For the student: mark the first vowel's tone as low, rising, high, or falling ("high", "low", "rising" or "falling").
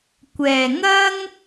low